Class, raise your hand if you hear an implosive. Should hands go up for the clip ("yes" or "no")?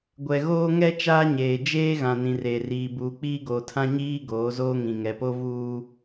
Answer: no